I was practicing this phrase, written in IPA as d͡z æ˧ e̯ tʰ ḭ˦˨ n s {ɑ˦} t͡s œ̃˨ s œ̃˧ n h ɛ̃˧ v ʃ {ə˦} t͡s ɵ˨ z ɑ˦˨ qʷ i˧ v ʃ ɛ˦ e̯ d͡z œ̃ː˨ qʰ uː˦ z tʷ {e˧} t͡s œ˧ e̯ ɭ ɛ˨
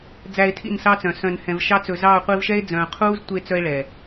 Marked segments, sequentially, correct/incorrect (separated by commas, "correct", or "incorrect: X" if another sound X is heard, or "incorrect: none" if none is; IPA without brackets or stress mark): correct, incorrect: ɑ˦, correct